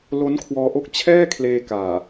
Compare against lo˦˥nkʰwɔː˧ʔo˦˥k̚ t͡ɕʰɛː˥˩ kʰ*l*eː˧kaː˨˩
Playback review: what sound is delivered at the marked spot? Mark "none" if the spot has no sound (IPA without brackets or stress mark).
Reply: l